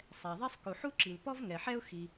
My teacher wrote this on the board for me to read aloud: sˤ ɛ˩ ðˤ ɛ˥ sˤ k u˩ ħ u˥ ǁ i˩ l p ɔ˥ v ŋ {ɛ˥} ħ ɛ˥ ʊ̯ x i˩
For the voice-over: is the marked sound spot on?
no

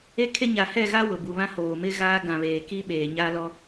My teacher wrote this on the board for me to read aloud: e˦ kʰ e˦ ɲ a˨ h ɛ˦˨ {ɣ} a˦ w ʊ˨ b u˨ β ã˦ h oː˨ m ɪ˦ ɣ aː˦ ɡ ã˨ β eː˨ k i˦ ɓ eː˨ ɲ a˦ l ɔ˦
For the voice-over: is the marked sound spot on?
yes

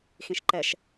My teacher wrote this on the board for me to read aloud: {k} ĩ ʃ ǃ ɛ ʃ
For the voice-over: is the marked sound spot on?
no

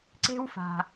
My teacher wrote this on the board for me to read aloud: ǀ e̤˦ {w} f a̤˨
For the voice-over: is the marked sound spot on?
yes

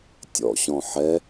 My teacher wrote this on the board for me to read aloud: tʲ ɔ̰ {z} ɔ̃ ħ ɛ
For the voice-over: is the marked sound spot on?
no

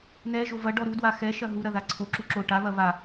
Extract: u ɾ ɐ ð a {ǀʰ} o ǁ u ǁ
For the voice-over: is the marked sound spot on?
yes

